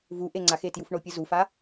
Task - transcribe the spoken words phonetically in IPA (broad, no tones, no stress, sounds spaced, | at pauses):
v u ʔ e ŋ͡ǀ a x e t j u f ɳ o pʲ ɯ z u f a